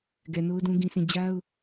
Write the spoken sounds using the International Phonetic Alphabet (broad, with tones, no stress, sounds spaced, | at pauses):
ɡ ɛ˨ n o˦ ʊ̯ d ũ˦ ɡ ĩ˦ s ĩ˦˨ d͡ʑ a˦ ʊ̯